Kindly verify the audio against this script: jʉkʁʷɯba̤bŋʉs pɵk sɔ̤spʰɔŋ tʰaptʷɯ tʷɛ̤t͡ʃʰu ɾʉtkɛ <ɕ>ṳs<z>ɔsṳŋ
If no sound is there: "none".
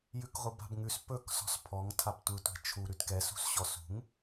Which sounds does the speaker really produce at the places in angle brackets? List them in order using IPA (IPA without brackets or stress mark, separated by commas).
s, ɕ